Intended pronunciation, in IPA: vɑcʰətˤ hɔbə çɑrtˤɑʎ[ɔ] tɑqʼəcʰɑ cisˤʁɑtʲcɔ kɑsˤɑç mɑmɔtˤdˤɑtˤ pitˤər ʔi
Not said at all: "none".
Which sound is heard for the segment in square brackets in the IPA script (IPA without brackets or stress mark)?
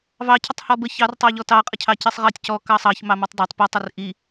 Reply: ɔ